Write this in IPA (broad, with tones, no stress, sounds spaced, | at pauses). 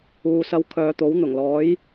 uː˨ s ɐ˧ w kʰ œː˨˧ t̪ o˨˥ w n̪ ʊ˨˩ ŋ l ɔː˨˥ j